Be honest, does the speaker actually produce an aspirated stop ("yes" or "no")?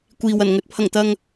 yes